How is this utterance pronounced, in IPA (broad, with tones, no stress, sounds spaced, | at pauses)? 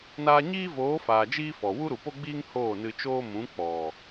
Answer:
n aː˧ ɲ iː˦ v oː˨˦ f aː˨ d͡ʒ iː˦ f ɔ˨ w u˦ ɾ u˨ p o˦ ɡ͡b iː˦ ŋ h oː˦˨ n ɨ˧ t͡ʃ oː˦ m ũ˨˦ k͡p ɔ˨